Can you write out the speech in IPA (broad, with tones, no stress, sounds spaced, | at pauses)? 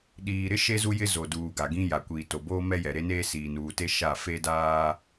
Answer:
ɗ iː˨ ɾ ɪ˦ ʃ e˦ z u˦ j ɪ˦ z o˨ d uː˨ ɡ a˨ ɡ ĩ˦ j a˨ kʷ iː˨ t o˨ b oː˦ m ɛ˦ j ɛ˨ ɾ e˦ n eː˦ s iː˨ n uː˨ t e˦ ʃ a˦˨ f e˦ d aː˦